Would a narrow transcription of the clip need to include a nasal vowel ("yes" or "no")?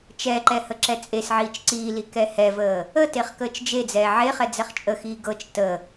no